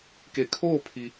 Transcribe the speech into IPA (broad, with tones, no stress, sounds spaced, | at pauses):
k e˩˧ kʰ oː˥˨ pʰ i˩